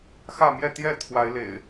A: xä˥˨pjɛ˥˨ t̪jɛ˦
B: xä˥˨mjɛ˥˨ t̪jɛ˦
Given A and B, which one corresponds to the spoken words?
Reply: B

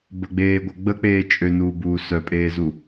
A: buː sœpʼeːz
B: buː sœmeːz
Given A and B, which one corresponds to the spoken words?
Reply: A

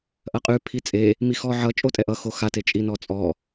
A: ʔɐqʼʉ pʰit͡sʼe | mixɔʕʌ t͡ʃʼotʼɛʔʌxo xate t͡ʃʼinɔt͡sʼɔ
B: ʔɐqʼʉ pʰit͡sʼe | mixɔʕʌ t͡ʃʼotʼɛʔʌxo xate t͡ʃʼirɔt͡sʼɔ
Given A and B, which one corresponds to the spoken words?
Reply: A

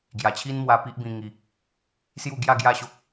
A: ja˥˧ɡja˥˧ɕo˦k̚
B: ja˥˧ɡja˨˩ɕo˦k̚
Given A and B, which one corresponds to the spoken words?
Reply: A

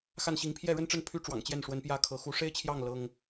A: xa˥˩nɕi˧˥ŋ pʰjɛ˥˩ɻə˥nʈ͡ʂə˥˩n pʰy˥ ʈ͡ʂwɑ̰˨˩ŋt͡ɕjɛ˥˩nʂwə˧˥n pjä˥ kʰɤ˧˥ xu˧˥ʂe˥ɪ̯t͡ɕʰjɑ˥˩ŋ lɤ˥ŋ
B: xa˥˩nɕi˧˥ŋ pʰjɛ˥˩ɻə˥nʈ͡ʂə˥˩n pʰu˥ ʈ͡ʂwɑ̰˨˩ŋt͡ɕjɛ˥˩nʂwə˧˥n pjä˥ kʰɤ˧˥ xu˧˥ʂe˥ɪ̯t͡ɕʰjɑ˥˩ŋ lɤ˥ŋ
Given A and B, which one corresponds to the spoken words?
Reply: A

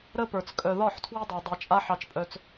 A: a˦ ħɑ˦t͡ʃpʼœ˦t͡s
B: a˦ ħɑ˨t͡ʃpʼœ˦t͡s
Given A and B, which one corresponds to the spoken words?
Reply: A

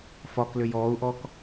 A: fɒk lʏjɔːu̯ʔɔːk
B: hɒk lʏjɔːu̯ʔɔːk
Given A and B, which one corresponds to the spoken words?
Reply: A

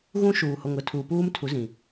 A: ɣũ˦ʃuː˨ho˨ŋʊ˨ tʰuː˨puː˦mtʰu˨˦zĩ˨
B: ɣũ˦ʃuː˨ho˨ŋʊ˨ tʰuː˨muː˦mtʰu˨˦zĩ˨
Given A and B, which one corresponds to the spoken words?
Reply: A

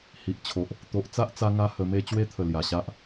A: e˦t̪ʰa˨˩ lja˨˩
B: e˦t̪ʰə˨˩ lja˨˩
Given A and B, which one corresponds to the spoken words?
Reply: B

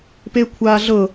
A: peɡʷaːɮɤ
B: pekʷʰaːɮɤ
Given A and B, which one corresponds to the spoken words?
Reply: B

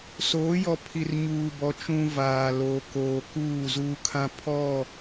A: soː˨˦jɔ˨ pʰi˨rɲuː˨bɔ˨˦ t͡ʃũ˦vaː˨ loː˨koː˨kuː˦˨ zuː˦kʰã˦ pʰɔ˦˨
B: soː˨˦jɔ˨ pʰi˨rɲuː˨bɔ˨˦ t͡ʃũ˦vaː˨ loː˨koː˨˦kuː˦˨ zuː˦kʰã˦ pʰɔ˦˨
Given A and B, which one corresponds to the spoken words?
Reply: A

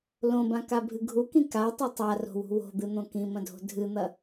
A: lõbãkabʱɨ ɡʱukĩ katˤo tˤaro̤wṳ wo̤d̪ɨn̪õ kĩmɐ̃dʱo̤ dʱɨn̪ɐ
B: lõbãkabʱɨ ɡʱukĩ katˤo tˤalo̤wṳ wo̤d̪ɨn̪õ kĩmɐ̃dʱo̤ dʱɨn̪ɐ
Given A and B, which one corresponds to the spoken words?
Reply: A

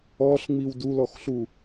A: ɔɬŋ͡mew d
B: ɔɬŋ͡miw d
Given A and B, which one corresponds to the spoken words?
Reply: B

